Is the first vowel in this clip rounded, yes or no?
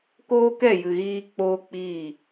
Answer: yes